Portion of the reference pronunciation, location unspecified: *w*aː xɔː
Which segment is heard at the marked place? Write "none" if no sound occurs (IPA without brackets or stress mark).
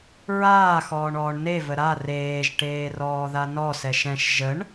ɹ